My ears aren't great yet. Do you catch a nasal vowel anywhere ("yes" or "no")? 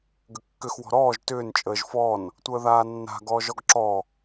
no